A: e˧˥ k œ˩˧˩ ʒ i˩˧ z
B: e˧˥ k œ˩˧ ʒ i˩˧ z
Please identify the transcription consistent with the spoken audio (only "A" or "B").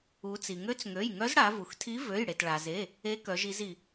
B